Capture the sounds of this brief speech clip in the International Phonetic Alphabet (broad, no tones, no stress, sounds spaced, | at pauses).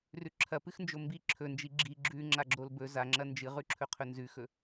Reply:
r ʉ ǁʰ ɐ p ɨ x n d͡ʒ o m b i ǁʰ ɵ n d͡ʒ i ɡ͡ǁ i ɡ͡ǁ ʉ ŋ͡ǁ a ɡ͡ǁ o l b ɵ z a ŋ͡ǁ ɐ n d͡ʒ ɨ ʁ ʉ ǁʰ ɵ qʰ ɵ n z ʉ x ɵ